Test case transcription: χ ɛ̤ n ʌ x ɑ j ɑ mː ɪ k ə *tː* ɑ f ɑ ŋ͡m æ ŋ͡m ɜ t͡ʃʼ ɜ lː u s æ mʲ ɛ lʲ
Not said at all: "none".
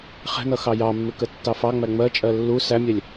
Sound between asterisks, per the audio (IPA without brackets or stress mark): tː